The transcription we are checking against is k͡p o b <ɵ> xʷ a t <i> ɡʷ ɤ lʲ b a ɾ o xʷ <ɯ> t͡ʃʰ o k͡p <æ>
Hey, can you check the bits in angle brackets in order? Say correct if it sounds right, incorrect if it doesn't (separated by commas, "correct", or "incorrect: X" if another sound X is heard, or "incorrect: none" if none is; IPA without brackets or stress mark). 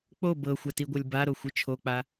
incorrect: ɤ, correct, correct, incorrect: a